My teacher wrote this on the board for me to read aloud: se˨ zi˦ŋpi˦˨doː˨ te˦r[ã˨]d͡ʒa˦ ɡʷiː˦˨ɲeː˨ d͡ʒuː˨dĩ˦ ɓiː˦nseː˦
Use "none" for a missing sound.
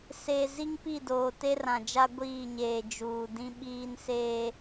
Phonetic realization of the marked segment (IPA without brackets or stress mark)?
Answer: ã˨